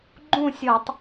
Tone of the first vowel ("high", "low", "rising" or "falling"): falling